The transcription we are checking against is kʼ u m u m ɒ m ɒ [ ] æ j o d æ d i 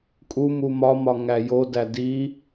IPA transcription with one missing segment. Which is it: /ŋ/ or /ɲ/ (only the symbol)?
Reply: ŋ